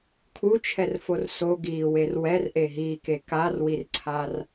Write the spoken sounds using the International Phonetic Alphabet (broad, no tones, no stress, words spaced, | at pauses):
kʰut͡ʃʰɛrfor soɡiːwer wɛrʔeɦiːke karwirǀʰar